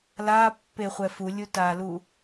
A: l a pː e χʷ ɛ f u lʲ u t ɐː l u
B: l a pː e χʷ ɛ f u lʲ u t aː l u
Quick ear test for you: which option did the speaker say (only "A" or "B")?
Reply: B